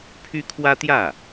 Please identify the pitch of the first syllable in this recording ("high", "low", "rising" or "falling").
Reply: high